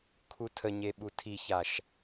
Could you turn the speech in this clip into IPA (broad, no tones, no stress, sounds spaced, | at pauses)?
kʰ u tʰ ə ɲ e ɓ u tʰ i ç a ʃ